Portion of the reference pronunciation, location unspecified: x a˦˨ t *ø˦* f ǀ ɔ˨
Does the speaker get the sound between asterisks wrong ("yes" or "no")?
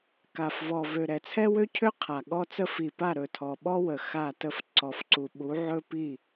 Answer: yes